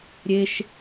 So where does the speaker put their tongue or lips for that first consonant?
tongue tip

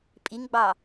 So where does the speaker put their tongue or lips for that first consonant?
lips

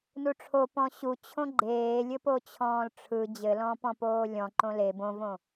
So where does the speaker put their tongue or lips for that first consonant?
tongue tip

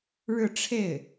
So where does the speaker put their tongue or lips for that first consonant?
retroflex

